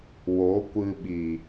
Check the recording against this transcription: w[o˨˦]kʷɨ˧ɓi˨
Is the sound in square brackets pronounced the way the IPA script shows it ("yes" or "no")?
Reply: yes